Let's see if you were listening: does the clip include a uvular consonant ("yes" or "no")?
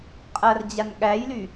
yes